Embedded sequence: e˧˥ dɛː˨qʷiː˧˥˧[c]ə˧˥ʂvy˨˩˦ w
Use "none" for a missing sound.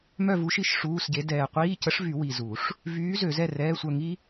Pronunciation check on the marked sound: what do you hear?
c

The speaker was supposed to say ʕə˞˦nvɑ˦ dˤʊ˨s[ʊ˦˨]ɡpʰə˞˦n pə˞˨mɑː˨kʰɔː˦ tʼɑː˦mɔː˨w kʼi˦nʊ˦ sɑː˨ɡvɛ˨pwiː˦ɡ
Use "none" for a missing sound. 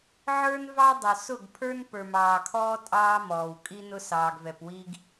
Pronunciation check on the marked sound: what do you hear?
ʊ˦˨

